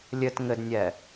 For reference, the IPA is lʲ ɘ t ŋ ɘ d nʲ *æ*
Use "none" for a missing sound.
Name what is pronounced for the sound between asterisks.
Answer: ɛ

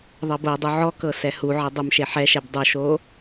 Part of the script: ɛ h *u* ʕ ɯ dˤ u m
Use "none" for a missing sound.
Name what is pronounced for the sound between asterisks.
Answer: u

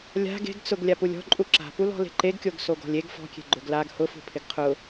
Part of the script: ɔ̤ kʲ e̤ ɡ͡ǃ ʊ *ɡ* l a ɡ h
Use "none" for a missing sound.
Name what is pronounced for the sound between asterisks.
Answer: ɡ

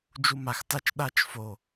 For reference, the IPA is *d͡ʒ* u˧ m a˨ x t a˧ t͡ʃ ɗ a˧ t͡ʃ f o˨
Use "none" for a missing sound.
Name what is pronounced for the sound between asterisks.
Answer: d͡ʒ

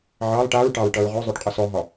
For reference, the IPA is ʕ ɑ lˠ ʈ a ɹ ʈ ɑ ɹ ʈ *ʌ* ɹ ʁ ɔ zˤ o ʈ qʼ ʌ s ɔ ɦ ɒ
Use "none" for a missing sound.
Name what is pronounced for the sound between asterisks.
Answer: ʌ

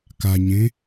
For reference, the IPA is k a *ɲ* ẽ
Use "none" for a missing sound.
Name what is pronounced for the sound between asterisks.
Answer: ɲ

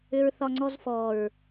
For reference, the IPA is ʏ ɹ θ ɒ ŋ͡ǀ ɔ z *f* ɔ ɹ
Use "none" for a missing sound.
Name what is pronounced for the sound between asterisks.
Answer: f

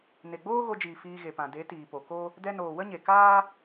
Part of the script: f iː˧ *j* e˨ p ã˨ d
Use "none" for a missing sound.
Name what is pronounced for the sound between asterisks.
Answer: ɣ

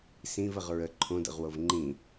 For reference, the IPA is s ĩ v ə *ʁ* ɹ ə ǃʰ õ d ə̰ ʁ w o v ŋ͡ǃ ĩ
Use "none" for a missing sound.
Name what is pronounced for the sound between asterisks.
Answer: ʁ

